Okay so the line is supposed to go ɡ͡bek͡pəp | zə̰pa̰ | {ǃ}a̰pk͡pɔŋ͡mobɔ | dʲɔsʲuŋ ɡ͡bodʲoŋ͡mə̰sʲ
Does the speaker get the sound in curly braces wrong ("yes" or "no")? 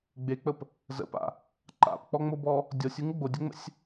no